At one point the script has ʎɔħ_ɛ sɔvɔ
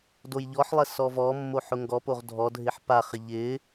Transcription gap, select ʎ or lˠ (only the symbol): lˠ